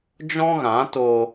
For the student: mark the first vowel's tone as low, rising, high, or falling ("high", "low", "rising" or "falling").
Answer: high